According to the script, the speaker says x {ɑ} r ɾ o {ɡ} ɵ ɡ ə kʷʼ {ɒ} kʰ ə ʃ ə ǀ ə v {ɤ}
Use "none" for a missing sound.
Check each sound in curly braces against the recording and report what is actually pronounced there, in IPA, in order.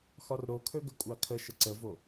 ɒ, kʰ, ɑ, o

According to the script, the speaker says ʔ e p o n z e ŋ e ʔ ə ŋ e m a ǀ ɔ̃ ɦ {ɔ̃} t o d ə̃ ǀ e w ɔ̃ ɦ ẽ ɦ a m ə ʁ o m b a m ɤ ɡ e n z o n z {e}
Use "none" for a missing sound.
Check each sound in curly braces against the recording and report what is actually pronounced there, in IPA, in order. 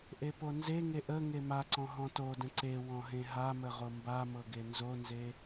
ɔ̃, e

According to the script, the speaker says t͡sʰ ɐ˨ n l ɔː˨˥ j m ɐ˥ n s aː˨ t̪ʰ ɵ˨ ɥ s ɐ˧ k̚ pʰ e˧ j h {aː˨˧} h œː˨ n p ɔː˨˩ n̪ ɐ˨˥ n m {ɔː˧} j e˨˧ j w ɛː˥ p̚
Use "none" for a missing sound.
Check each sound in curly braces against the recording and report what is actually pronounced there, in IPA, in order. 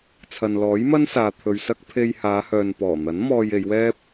aː˨˧, ɔː˧

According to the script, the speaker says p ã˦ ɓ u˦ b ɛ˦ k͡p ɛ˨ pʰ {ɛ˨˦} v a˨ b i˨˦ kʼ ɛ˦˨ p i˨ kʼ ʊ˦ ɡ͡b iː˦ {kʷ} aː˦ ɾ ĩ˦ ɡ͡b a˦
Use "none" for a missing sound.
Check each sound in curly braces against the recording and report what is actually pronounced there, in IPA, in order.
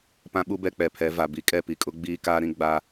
ɛ˨˦, k

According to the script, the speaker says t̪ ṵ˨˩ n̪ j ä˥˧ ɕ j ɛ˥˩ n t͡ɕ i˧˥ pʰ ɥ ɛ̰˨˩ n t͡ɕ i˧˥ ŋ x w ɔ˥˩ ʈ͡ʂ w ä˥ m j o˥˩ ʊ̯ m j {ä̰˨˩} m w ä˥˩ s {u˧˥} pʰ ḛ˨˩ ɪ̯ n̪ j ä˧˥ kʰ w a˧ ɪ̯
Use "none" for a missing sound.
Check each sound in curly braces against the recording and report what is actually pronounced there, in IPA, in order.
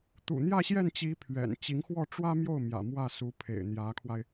ä̰˨˩, u˧˥

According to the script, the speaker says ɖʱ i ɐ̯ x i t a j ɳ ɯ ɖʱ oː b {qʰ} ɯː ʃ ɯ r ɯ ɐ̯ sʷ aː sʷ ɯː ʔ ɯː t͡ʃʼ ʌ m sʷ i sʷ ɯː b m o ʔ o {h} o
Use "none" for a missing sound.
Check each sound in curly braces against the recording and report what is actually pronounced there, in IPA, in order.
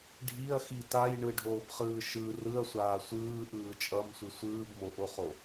χ, χ

